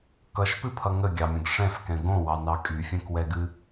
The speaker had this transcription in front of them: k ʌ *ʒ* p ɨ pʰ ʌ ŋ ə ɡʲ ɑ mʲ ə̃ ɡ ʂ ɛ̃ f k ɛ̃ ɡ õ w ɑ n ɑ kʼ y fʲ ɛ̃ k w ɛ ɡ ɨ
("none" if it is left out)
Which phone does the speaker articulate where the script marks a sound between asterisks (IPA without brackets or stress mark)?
ʃ